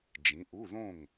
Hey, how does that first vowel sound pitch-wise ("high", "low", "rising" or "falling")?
rising